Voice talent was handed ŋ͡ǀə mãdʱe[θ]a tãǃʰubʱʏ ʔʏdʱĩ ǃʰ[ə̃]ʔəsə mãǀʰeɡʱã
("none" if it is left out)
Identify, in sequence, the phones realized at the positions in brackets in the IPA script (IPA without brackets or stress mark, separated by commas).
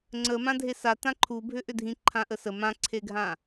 s, ã